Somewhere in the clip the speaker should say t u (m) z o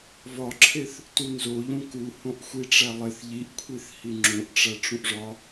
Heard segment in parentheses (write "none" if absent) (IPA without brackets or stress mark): n